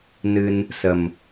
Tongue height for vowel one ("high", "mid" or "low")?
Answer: high